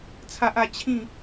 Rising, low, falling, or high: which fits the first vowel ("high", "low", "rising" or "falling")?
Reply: high